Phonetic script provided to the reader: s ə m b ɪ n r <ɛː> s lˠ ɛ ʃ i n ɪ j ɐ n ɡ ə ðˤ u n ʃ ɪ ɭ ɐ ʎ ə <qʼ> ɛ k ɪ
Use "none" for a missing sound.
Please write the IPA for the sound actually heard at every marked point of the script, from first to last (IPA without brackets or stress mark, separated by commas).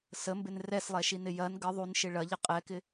ɛ, qʼ